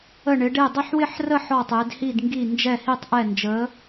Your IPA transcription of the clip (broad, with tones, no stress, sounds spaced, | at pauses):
ə˥˧ ɳ ɪ˧˥ ɖ e˥˧ dˤ ɪ˥˧ ħ w ɪ˥˧ ħ r ə˥˧ ħ ɔ˥˧ tˤ e˧˥ d h i˥˧ d ŋ ɡ i˥˧ n d͡ʒ ɛ˥˧ h i˥˧ tˤ ʔ ɛ˥˧ n d͡ʒ ə˧˥